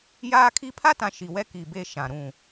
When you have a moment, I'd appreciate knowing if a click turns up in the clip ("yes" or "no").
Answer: no